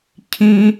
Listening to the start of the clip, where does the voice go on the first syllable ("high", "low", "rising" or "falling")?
high